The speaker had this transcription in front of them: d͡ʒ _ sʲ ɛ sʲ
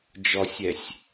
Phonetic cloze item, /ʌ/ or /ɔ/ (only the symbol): ɔ